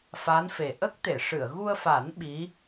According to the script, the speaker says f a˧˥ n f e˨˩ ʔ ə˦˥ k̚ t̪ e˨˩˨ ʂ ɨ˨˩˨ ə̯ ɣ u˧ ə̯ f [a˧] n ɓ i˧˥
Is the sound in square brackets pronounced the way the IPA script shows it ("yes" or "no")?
no